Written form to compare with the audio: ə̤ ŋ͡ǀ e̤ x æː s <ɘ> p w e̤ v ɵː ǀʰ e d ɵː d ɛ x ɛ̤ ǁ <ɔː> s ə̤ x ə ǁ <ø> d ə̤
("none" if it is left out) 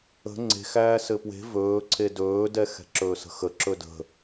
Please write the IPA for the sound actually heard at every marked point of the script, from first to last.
ɘ, ɵː, ɵ

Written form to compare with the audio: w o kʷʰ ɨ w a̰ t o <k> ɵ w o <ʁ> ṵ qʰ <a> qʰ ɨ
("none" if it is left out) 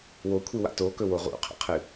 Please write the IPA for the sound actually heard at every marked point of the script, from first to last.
k, ʁ, a̰

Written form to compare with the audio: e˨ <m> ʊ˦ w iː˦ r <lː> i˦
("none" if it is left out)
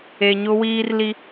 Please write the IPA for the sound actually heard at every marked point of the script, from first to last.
ɲ, l

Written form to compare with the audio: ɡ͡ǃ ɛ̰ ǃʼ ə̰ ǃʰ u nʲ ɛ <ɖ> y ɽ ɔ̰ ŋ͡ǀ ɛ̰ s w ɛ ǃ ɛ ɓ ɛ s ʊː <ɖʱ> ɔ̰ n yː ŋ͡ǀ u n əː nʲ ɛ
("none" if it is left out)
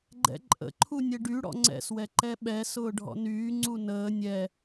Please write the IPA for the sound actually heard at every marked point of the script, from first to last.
ɖ, ɖʱ

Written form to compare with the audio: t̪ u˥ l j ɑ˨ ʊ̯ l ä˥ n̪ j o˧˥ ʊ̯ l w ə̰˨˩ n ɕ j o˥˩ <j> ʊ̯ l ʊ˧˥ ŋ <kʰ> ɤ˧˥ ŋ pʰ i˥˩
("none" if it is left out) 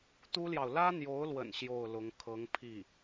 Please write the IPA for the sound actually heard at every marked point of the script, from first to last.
none, kʰ

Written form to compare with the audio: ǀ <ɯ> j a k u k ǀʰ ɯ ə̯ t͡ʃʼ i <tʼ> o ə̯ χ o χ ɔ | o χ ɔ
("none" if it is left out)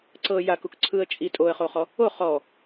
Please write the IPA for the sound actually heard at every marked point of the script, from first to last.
ɤ, tʼ

